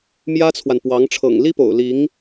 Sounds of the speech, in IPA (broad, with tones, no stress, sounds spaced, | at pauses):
m j ä˥ t͡sʰ w a˨ n p w ɑ˧˥ ŋ ʈ͡ʂʰ ɤ̰˨˩ ŋ l i˥ p o̰˨˩ ʊ̯ l i˧˥ ŋ